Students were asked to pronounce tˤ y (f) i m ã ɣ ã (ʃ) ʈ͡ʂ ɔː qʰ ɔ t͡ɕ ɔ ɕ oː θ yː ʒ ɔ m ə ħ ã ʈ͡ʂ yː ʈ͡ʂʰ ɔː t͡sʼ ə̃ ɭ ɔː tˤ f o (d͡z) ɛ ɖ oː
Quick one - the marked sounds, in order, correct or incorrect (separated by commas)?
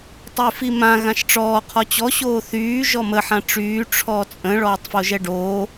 correct, correct, incorrect